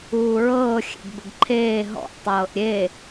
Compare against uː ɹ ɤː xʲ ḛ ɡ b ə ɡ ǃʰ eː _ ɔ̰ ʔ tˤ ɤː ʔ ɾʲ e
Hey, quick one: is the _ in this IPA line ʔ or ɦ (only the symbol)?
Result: ɦ